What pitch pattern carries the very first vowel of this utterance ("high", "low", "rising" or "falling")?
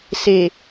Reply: low